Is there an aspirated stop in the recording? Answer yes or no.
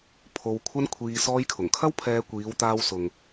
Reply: yes